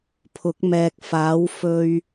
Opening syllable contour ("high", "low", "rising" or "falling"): rising